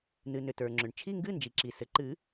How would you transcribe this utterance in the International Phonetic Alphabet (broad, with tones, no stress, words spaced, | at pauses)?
nɨ˩nʏ˩ tə˞˩ŋ͡ǁʏ˩ɳ t͡ʃʰi˧˥˧ŋɡɨ˧˥˧nd͡ʒi˩ǁi˩ sɘ˩ǃɨ˨˩˦